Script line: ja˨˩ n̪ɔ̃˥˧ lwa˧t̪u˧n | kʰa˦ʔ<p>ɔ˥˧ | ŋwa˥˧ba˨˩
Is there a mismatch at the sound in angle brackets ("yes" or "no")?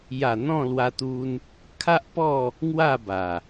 no